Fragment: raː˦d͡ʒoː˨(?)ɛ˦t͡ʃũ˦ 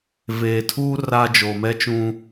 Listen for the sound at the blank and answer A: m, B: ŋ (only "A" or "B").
A